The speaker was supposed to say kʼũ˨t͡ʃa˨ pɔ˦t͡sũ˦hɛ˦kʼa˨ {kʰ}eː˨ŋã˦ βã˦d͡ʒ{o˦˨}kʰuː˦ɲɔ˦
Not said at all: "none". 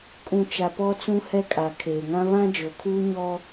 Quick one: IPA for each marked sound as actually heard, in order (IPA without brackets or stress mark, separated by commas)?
kʰ, o˨